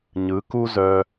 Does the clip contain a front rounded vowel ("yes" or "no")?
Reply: yes